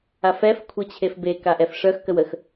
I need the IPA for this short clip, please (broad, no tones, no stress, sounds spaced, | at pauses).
a f ɛ f kʷʰ e t͡ɕʰ e f b e k a ʔ ɛ f ʂ œ x k ə w ə x